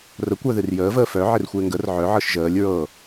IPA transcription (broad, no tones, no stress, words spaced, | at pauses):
rə kʷœðɨrjəː vəːfœ ʕɪrxʷɪːŋɡər ʕœ ʕɤʃʒəːlʲ ɹɤ